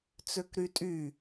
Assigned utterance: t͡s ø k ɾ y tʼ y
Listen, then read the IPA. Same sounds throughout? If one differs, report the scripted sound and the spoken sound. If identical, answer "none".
none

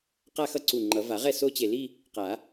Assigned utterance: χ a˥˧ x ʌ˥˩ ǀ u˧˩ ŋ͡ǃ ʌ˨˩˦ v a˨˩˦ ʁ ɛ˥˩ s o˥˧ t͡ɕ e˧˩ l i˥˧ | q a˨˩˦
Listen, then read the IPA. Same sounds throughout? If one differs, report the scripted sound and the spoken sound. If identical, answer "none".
χ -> q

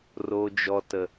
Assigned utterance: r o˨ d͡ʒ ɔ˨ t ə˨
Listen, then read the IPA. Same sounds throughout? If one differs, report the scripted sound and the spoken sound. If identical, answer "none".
none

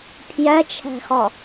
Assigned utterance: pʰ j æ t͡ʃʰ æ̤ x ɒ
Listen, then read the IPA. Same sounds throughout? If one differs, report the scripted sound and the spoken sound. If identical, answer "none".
none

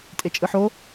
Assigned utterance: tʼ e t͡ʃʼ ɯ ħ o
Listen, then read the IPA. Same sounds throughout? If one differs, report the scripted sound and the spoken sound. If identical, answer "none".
none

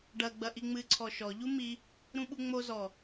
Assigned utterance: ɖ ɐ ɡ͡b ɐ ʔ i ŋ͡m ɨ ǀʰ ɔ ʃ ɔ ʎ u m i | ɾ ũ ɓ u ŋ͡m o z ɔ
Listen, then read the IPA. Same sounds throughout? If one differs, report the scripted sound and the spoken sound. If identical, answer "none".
none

